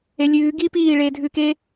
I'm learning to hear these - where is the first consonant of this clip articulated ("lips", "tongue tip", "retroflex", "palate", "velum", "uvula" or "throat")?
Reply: tongue tip